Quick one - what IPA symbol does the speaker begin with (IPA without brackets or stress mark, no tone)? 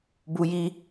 b